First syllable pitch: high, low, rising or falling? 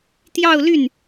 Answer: falling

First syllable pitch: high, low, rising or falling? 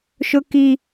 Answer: high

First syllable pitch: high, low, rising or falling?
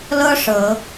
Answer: high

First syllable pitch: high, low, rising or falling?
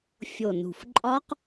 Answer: low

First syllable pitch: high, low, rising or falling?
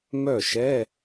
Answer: falling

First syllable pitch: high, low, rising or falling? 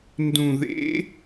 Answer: low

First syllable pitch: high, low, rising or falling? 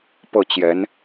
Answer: falling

